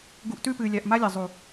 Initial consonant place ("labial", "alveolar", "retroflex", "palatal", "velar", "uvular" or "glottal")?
velar